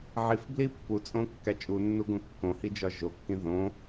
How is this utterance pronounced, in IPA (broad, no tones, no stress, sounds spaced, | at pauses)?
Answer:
ʕ i f b l i pː u t͡sʼ õ kː æ t͡ʃʼ u nː u ɡ õ kː õ h i d͡ʒ ɒ ʒ o kː ĩ ð õ